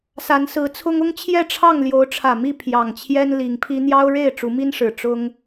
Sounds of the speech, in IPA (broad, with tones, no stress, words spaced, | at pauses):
sa˨˦nsɹ̩˨˦t͡sʰʊ˦ŋ ʊ˦ŋ t͡ɕʰjɛ˥˨ʈ͡ʂʰɑ˥˨ŋ ljo˨˦ʊ̯ʈ͡ʂʰä˨˩mi˥˨ pʰjɑ˨˩ŋt͡ɕʰjɛ˦n li˨˦ŋpʰi˦ n̪jɑ˦ʊ̯ ɻe˥˨ɪ̯ʈ͡ʂu˨˦mi˦nʂɻ̩˨˩ ʈ͡ʂʊ˦ŋ